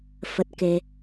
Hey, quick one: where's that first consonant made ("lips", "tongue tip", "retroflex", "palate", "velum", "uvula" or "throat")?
lips